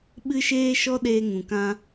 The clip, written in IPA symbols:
ɓɨ˦ʃeː˦ʃɔ˦ ɗeː˧ŋũ˨kã˧

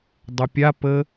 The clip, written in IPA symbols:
dˤɐpʲapə

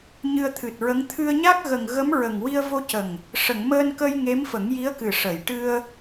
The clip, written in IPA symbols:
ɲɨ˧ə̯t̪ʰɨ˨˩t̚ɹə˧˥ŋ t̪ʰɨ˧ə̯ɲa˦˥k̚ɣə˨˩ŋ ɣə˧˥mɹə˨˩ŋ wi˧ə̯vo˧cə˨˩ŋ | ʂə˨˩˨ŋməː˧nkə˧j ŋe˧˥mfə˨˩˦ŋji˧˥ə̯kɨ˨˩ ʂə˨˩˨j ʈɨ˧ə̯

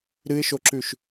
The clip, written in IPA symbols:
ɾɨɪ̯ʃoǁʉʃ

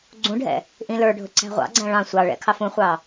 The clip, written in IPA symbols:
ɡ͡ǀũɖʱɛ̰ | ʔĩlə˞ɖʱʊ ǀæ̤ʁʷɑ̰ɡ͡ǀæ̃ ɭɑ̃ sʷɑɭɛ̰ kʰɑfũχʷɑ

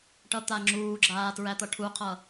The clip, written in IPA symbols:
ʈʌt̪aŋ͡ǁuːɡ͡ǁaː tɹæt̪ʌʈʰuqʰʌ

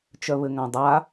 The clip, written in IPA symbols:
t͡ʃœβɘŋãdˤa

